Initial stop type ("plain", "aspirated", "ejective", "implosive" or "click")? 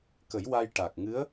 plain